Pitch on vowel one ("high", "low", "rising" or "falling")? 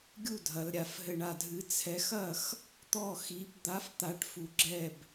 falling